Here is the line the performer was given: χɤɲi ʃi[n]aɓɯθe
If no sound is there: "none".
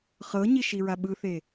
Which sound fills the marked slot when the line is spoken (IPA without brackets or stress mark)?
ɹ